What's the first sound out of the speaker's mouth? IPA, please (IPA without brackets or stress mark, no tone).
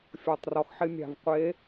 fʲ